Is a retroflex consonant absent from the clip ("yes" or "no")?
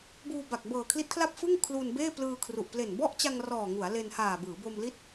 yes